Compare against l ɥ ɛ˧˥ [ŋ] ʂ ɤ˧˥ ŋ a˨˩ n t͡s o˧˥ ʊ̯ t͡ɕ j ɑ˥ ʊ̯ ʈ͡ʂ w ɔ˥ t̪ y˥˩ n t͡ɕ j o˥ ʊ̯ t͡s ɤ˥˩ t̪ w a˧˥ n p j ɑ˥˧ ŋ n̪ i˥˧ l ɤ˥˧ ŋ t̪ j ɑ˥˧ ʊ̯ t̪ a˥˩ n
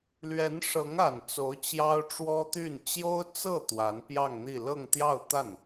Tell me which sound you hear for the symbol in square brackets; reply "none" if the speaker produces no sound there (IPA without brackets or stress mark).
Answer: n